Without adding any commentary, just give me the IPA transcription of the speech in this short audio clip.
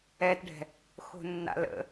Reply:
ɛ t ɖʱ ɛ̤ | x o̤ nː a̰ l ə̰

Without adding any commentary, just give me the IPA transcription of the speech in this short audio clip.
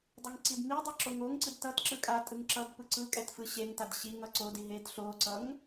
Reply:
dˤ ɯ ŋ ǀ i d m i dˤ ɛ ǁ o ŋ o ŋ ǀ ɯ d t ʌ t ǁ ɯ kʼ a tʼ ɯ ŋ ǁ ʌ d p ɯ ǀ ɯ kʼ ɛ t f ɯ ɕ e ŋ t a d ɕ i ŋ ʌ ǀ o d i ɦ e d ɬ o ǀ ʌ ŋ

